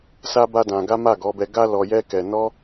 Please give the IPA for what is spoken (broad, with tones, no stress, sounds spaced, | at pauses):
s a˦ b a˦ d ã˧ ɡ a˦ m a˦˨ ɡ ɔ˨˦ b ɛ˧ ɡ a˦ l ɔ˧ j ɛ˦ k ɛ˧ n ɔ˦